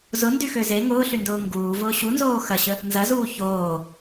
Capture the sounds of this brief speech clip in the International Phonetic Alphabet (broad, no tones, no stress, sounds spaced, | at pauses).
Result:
z ʊ n d y x ø z e ŋ ʊː ɬ y n d ʊː ŋ ɡ uː v ʊː ɕ u n z oː x ɐ ɕ ə | n z ɐ z uː ç oː